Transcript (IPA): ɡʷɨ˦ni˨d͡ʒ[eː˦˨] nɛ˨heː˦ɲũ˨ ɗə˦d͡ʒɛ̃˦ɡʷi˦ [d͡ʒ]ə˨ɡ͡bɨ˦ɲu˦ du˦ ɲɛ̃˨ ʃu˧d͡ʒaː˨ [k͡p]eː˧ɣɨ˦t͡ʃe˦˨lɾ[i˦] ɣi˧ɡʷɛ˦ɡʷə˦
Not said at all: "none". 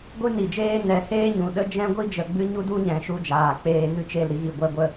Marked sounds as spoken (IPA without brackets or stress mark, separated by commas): eː˦, d͡ʒ, k͡p, i˦